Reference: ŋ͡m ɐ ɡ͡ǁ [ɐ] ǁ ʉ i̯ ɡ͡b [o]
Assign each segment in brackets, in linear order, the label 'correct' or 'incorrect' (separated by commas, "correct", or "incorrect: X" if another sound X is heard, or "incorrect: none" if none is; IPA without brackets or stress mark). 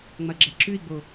correct, correct